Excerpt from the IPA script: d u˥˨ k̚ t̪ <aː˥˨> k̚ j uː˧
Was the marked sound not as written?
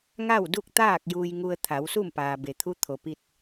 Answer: no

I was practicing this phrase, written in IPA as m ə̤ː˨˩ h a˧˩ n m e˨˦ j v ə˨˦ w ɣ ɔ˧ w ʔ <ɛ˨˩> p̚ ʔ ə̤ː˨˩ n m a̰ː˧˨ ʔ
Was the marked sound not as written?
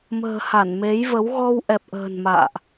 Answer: no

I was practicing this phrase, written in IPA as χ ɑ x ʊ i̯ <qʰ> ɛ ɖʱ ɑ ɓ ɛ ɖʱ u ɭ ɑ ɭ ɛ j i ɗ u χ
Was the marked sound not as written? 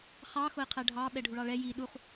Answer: no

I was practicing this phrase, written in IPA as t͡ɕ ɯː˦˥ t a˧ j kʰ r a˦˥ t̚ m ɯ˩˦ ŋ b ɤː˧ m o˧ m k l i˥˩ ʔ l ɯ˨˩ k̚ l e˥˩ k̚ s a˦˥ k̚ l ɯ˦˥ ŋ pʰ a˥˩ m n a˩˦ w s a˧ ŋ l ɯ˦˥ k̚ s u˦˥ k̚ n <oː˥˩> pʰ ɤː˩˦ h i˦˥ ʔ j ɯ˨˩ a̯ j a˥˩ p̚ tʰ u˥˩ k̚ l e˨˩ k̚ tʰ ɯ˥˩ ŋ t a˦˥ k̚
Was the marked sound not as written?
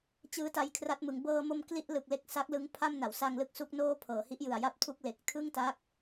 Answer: no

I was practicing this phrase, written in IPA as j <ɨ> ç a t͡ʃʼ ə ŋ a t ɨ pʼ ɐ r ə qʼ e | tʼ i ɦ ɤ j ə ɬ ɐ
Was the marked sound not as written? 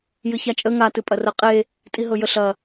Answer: no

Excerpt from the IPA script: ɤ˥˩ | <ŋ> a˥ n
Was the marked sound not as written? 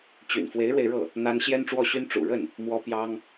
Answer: yes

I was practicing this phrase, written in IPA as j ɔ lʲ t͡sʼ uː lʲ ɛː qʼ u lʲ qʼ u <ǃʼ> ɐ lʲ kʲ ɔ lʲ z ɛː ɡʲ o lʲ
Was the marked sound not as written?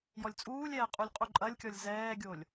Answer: no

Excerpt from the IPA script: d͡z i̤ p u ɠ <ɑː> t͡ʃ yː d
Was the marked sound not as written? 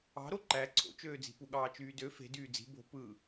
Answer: no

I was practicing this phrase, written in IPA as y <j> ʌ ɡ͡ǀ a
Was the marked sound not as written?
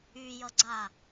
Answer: no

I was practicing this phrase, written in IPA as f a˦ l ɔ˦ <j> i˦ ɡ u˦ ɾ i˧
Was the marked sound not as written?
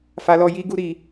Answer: no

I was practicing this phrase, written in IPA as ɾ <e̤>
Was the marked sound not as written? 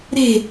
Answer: no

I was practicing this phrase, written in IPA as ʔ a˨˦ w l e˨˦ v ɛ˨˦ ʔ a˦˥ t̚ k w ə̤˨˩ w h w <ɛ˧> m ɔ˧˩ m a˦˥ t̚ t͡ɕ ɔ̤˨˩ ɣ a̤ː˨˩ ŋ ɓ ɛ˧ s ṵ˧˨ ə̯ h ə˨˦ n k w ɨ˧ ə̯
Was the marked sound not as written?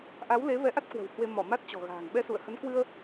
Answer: yes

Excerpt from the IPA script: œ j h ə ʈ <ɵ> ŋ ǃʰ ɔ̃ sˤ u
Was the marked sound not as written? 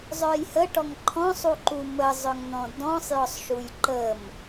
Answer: yes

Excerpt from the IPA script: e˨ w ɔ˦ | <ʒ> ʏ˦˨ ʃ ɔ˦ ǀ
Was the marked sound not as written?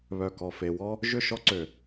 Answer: no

